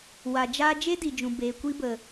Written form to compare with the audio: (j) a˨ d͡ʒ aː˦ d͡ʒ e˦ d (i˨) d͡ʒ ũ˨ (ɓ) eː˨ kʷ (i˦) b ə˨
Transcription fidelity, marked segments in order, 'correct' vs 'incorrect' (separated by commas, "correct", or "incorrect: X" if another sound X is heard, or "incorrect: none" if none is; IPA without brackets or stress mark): incorrect: w, correct, incorrect: b, correct